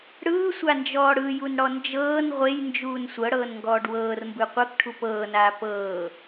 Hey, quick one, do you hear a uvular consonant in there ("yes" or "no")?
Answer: yes